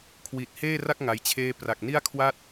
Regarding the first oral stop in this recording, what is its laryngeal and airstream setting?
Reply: aspirated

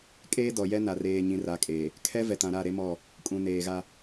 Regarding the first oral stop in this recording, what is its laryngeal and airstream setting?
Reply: ejective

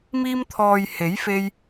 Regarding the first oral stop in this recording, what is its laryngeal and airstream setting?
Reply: aspirated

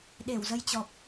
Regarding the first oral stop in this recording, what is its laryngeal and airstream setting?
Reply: implosive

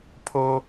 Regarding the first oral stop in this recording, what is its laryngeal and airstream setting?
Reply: aspirated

